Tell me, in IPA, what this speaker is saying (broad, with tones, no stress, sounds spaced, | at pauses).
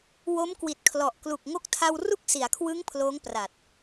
w o˦˥ m k w i˨˩ t̚ kʰ l ɔ˨˩ ʔ k l u˨˩ k̚ ŋ o˦˥ k̚ tʰ a˧ w r u˥˩ k̚ s i˩˦ a̯ kʰ w ɯ˦˥ ŋ pʰ l oː˦˥ ŋ p r a˨˩ t̚